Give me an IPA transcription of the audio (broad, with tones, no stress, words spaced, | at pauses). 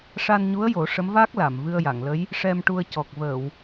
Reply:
ʂa˧nɲu˧˥ə̯jo˨˩˦ ʂə˧˥mvaː˦˥k̚ la˨˩˨m vɨ˧ə̯ja˨˩˨ŋlə˧˥j | ʂɛ˧mʈu˧ə̯ cɔ˨˩k̚ vəː˨˩˨w